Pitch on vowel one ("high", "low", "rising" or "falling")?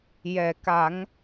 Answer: low